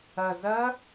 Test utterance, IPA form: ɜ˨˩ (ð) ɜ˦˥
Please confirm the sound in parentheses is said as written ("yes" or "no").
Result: no